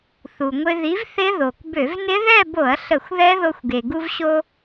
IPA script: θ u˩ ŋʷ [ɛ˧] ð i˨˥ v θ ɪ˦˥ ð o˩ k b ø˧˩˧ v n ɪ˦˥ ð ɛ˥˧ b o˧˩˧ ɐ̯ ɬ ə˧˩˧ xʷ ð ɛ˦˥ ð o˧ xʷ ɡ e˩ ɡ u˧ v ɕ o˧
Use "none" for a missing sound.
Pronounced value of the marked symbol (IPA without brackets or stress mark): ɪ˧